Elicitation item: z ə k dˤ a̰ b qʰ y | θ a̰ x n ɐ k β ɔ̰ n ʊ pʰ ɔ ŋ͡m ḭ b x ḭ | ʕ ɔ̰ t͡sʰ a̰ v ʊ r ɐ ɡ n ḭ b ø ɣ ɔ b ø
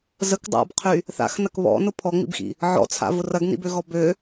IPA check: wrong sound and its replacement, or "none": none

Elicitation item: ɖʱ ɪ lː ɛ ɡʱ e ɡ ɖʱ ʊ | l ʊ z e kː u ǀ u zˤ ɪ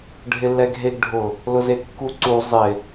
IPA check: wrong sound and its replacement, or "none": none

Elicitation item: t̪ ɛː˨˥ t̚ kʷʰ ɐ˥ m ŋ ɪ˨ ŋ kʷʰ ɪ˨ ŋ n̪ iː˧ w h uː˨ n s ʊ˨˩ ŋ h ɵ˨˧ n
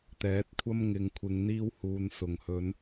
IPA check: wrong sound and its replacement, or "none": none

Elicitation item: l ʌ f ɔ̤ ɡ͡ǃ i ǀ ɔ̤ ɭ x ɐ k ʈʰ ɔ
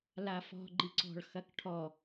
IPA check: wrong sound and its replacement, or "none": ʌ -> a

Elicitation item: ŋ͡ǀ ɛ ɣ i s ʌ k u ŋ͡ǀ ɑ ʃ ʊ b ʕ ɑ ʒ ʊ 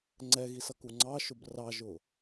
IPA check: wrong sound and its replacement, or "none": ʕ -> r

